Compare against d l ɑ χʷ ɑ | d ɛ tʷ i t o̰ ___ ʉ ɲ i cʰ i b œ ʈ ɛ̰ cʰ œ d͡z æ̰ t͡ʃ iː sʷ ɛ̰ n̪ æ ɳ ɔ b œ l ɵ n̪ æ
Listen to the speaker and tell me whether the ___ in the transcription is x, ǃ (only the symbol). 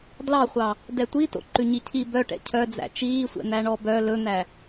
ǃ